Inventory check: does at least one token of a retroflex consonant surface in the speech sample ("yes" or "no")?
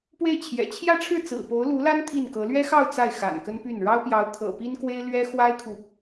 yes